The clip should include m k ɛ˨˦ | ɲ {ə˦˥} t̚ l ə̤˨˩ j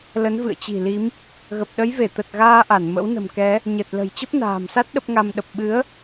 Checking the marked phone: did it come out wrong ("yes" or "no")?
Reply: yes